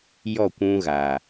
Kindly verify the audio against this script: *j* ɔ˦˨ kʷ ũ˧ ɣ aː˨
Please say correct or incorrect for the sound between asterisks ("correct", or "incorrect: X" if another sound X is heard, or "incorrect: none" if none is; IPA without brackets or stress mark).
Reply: correct